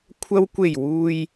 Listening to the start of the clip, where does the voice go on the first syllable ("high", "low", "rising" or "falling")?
low